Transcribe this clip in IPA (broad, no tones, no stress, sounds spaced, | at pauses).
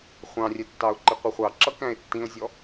χʷ ɑ̃ rʲ ɛ tː ɑ ʊ̯ ǃ ɪ qʷ i χʷ ɑ ǁ ʌ k æ̃ ɪ̯ tː ĩ ʊ̯ zʲ ɔ